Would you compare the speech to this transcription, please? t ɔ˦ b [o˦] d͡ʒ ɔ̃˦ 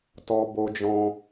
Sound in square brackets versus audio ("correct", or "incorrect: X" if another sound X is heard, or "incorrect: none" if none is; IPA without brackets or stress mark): correct